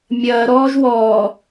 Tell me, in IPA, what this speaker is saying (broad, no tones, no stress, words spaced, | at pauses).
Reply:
mʲɐːɾɔːʒ wɔː